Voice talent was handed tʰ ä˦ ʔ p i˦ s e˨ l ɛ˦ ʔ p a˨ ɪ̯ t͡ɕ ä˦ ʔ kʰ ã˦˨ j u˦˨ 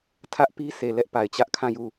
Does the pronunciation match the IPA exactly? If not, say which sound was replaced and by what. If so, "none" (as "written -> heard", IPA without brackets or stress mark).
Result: none